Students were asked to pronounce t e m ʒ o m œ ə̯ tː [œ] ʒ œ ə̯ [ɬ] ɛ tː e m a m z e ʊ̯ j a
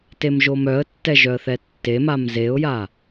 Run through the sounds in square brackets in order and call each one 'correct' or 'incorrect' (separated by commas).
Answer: incorrect, incorrect